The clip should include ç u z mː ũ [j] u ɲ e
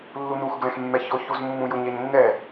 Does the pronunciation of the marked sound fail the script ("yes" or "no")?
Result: no